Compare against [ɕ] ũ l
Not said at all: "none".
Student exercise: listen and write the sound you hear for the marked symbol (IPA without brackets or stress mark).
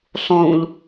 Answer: sˤ